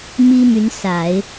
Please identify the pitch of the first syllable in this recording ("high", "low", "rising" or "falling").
high